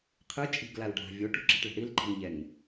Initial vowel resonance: oral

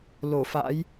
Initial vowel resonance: oral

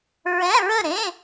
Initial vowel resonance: nasal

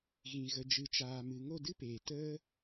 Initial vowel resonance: nasal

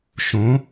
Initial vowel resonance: nasal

